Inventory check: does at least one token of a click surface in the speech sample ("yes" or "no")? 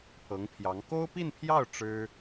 no